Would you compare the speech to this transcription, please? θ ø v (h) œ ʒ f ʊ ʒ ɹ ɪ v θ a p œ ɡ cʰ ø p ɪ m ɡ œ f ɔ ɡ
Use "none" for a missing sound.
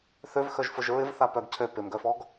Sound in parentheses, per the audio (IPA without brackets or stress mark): x